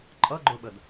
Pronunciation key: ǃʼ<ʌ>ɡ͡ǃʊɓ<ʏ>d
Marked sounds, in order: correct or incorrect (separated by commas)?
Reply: correct, incorrect